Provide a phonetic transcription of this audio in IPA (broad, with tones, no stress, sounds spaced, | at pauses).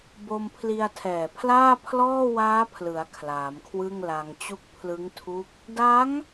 b o˧ m pʰ l i˧ a̯ tʰ ɛː˨˩ pʰ l aː˥˩ pʰ l ɔː˥˩ w aː˦˥ pʰ l ɯ˩˦ a̯ kʰ l aː˩˦ m kʰ w ɯ˥˩ ŋ l a˧ ŋ t͡ɕ u˦˥ k̚ pʰ l ɯ˦˥ ŋ tʰ u˦˥ k̚ | d a˦˥ ŋ